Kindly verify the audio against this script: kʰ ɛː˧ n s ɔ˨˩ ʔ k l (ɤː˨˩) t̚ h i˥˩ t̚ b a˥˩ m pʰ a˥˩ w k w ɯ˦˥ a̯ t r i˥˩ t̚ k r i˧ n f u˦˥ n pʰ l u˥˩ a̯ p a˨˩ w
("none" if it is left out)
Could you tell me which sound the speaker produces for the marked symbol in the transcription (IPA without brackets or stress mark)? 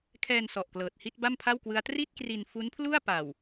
ɤː˨˩